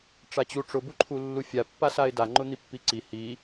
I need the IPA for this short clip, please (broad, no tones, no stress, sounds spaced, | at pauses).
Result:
ʈ͡ʂ a t͡ɕ u ʈ͡ʂ ʊ b u ǃʰ u lː u fʲ a pː a s a ɪ̯ d a ŋ͡ǃ ʊ n̪ i pː i ǀ i h i